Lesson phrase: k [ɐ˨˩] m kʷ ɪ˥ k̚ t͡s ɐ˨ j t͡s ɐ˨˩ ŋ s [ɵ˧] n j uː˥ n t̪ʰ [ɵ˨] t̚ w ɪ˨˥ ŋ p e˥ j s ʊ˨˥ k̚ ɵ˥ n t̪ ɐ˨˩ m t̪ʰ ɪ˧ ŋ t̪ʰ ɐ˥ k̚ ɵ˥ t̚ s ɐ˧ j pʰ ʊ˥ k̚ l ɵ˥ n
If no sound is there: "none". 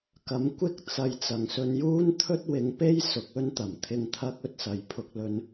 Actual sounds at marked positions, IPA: ɐ˨˥, ɵ˧, ɵ˥

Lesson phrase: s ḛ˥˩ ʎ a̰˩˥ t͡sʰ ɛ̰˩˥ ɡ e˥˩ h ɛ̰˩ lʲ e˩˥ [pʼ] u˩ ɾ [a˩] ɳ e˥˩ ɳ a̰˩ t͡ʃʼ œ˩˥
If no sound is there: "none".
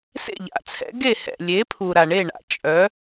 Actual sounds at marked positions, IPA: pʰ, a˩

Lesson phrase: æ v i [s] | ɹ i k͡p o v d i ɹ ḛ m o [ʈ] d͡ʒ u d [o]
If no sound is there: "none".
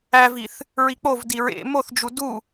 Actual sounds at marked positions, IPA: θ, θ, u

